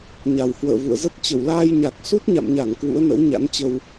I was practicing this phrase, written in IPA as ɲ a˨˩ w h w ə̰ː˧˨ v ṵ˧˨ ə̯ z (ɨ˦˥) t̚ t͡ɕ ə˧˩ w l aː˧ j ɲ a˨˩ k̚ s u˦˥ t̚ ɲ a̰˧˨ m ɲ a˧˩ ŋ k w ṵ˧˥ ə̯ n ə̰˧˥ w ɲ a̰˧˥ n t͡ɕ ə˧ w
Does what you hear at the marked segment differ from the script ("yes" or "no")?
yes